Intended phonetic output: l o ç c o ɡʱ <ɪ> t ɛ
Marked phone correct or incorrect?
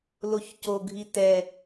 incorrect